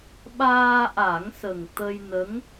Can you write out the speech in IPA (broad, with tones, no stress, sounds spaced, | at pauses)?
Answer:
ɓ aː˧ ʔ a˨˩˦ ŋ s ə˨˩ ŋ t̪ ə˧ j n ə˧˥ ŋ